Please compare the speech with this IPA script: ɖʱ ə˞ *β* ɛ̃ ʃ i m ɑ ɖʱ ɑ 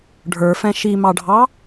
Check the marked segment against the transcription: incorrect: f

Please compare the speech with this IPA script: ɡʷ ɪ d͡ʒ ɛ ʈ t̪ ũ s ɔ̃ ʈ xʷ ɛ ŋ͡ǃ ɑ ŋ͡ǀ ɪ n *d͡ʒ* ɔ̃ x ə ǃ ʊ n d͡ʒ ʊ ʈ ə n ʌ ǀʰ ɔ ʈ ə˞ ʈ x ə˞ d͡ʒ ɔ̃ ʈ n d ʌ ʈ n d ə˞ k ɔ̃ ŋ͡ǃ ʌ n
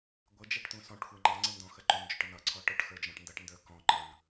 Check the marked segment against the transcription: incorrect: d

